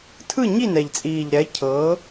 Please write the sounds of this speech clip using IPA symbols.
tʰ ɯ˥˨ ɲ i˥˨ n ɛ˨˩ ʎ t͡sʼ iː˨˩ ʎ ɾ ɛ˨˥ cʰ ɤː˨˥

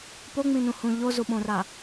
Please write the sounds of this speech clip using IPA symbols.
p o ŋ͡m ĩ n ũ h ũ ʎ o z u ɓ õ r a

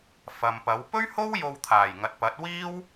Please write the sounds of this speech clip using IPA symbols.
f ɐ˨ m p ɐ˨˥ w p ɵ˥ ɥ h o˥ w j o˧ w t̪ʰ aː˨˩ j ŋ ɐ˨ t̚ p ɐ˨˥ t̚ w iː˥ w

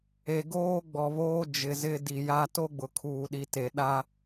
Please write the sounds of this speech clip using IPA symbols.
e˨ ɡ oː˦ ɡ͡b ɔ˨ β oː˦ d͡ʒ ɪ˨ z ɪ˦ d i˨ j a˦ t o˦ ɡ͡b ʊ˨ kʰ uː˨ ɗ i˨ t e˨ ɗ a˦

